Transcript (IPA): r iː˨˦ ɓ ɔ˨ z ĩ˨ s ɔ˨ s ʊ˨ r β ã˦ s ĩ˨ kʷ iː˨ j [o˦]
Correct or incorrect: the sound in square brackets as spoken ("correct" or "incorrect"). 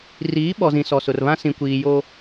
correct